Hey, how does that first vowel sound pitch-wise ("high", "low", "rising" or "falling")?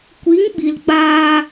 rising